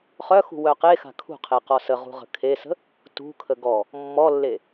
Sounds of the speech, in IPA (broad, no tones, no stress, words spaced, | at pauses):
χœxṳ wœqexa̤ kʰṳqʰe qɔsəʁṳ ʁə̤kʰesə̤ | tṳkʰə ɡɔ | mːɔlːe